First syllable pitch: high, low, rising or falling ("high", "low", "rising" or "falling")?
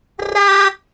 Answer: high